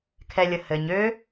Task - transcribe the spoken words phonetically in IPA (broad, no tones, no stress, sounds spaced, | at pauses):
kʰ ɛ lʲ ə h ɘ ɲ ø